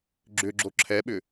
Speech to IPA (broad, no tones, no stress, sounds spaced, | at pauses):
ɡ͡ǁ ʏ ɡ͡ǁ o ǁʰ ɛ ɓ ʏ